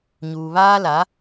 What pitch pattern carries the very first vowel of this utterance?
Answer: low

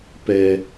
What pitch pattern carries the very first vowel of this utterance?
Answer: low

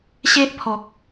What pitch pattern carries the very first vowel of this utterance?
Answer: high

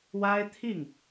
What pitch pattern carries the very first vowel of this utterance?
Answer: high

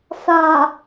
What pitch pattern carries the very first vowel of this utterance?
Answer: low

